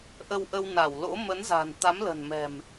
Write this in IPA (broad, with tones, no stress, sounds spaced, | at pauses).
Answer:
ʔ ə˧ w ʔ ə˧ w n a˧˩ w l o̰˧˥ m ə˨˦ n z a̤˨˩ n t̪ a˨˦ m l ə̤˨˩ n m ɛ̤˨˩ m